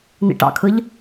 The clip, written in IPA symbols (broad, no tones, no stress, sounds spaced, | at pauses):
n ḭ ʈ ɑ̰ kʰ ɯ ʎ